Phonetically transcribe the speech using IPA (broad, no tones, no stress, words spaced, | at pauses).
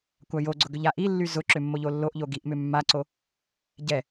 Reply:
kʷajoɡ͡ǀʊ ɡʏʎaʔilːy zʊǁʏ mːoʎolːoʔʎo ɡiʔmʏ mːaǀo | ɟɛ